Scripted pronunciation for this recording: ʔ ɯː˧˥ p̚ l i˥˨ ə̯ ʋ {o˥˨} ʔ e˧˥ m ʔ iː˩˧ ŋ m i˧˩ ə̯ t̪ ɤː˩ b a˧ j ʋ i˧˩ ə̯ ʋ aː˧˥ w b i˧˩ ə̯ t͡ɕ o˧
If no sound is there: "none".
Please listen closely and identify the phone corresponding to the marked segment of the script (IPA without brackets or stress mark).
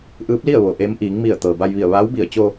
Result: o˩